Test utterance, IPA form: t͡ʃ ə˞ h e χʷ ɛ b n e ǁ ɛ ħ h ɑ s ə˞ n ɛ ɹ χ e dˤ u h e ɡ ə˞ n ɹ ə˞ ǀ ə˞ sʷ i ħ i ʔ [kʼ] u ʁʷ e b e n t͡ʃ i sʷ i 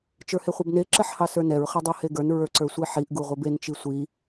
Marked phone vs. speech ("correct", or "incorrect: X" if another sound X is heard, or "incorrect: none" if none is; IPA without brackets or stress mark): incorrect: ɡ